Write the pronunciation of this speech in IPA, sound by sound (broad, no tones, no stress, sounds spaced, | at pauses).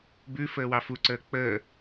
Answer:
b ʉ f əː w ɑ f u ǀ əː k͡p əː